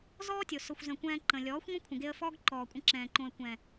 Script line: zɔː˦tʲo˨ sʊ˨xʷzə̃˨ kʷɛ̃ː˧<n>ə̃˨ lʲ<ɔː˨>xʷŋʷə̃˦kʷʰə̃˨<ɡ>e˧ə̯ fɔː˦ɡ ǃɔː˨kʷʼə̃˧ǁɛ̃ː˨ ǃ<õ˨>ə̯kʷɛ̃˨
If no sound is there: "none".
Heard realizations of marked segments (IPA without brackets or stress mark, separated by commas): ǃ, ɔː˨˦, ɡ, õ˨